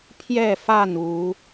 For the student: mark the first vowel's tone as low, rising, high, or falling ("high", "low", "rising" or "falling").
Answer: falling